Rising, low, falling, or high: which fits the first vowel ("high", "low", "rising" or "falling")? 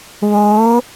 rising